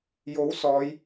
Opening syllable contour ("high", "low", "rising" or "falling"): rising